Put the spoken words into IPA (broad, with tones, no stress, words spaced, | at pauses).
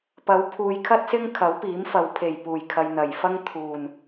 pɐ˨˥wpʰuː˨jkʰɐ˥t̚sɪ˥ŋ kʰɐ˨˥wpiː˨˥mfɐ˨w pʰe˨˩j puː˨˩jkʰɐ˨j n̪ɐ˨˩jfɐ˥ŋ t̪ʰuː˨˩n